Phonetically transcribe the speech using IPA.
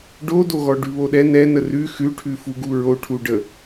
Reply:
ɖodoɣɔ ɖʉβoɗɛ nɛ nərʉ xʉʈʰʉfuɡu ɹoʈʰuɖə

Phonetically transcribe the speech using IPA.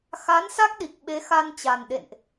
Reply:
xa˨˦nsa˦˥k̚ɗi˨˩k̚ ɓe˨˦xa˧nt͡ɕa˨˩nɗḛ˧˨nʔ

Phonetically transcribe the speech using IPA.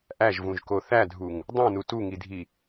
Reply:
ʔæʒvũʒko θædʱuŋ | dˤõnu tuŋidʱi

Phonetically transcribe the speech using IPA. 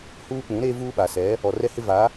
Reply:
huː˦k͡pũ˨˦ɾeː˦ vuː˦ɓa˨sɛ˨˦ | ɔ˨rɛ˦hɪ˦va˨˦

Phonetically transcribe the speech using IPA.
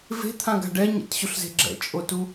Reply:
ve̤t̪ʰãɡa̤ ɖɛɲḛtɕoɬze̤ ɡ͡ǁɛ̰t͡ʃʼotu

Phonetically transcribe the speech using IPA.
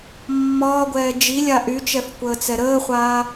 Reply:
mːɒːɡʷɛː d͡ʒilʲa ʔyt͡ʃɛfkʷəːt͡sɛ ɾəːχʷaː

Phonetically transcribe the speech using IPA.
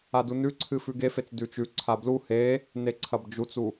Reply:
adunʉǀʰɨ fʉɡefet͡s dʉt͡ʃʉǀʰa blu he | neǀʰɐbd͡ʒut͡su

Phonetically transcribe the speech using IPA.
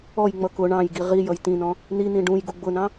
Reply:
ɔjŋ͡mʌ kʊ ɳɑ̃jɡi ʁi jʌjtĩnɔ̃ | nin̪ĩ ɖũj ɡuɡ͡bʊnɑ̃

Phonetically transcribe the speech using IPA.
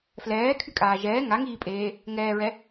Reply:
flɛːkʰykʼaː ʒɛː ŋaŋiːpʼeː | ŋɛːɹɛ

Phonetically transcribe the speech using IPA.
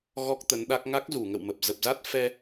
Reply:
ɣɔ˦˥k̚t̪ə˨˦nɗa˦˥k̚ ŋa˦˥k̚zu˧˩ŋə̰˧˨wmə˨˩p̚ zə˨˩p̚za˦˥t̚ fɛ˧

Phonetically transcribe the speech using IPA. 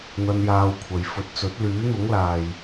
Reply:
n̪ɐ˧njaː˧wkʷʰɐ˨j fɵ˨t̚t͡sɵ˨˥t̚ lyː˨˥n̪ʊ˨˥ŋlaː˨j

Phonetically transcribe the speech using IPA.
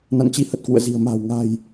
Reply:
na̰˧˨nt͡ɕi˨˦ hə˨˩t̚kwṵ˧˨ə̯ zi̤˨˩ə̯ ma̤ː˨˩wŋa̤ː˨˩j

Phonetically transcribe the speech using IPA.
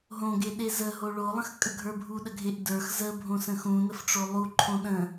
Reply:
ɦõɡeɗe zəɦo ɭolˠə̃xkʼəɡʱə˞ bʱuɗəɡʱeʔ də˞x zəbʱõsə̃ xũnəfʈ͡ʂo lˠuǃʰõ ɗə̃

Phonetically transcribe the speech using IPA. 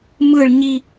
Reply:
mɯɭ ɲi

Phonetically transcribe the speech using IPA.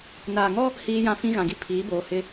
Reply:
naː˨ŋɔ˦ | hiː˦jã˦ fĩ˦ɣã˨ɡi˦ pʰiː˨˦boː˨hɪ˦

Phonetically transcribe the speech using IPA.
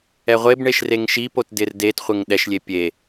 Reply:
ɛʁʷebɳeʃ reŋʃipot dɪrdetχʷɪŋ ɗɛʃlʲe pʲe

